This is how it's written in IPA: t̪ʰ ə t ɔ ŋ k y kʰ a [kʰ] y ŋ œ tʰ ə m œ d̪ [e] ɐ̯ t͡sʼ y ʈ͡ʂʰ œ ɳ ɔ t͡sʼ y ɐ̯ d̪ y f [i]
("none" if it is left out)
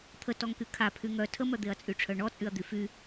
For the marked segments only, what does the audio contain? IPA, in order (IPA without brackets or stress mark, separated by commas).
pʰ, e, y